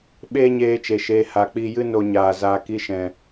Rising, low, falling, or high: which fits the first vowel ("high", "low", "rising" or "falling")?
high